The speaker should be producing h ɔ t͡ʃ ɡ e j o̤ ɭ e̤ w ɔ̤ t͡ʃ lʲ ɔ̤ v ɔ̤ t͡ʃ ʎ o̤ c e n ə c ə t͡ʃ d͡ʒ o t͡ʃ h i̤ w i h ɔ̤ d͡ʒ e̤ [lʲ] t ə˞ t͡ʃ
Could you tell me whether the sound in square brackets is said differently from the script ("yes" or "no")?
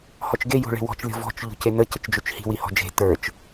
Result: yes